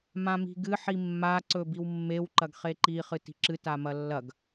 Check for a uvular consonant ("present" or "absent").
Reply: present